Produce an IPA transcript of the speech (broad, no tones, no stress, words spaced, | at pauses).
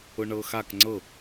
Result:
ʊɳɤxak ŋ͡ǀɤ